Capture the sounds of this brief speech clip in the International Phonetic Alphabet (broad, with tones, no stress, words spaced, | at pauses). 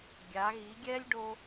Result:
ɡʲa˩˧ɣi˩˧ɡʲɛ˥lʲ ɖo˥